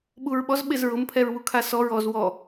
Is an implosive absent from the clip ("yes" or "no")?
no